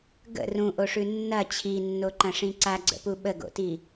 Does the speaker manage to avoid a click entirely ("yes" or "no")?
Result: no